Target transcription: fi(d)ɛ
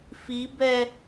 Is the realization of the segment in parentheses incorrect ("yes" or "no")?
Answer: yes